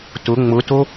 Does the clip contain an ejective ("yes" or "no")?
no